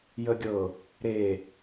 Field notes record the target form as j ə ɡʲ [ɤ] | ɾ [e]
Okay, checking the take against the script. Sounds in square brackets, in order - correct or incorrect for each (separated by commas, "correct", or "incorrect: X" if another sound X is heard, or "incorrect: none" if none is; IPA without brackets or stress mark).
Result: correct, correct